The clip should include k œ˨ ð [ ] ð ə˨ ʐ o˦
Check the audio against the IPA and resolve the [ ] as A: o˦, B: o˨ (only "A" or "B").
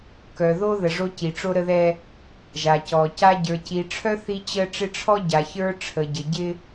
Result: A